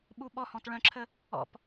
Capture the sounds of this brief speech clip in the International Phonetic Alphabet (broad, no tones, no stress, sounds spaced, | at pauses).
ɓ u ɓ ɔ h ɔ̃ t ɭ œ̃ ǁʰ ə | ɔ̰ p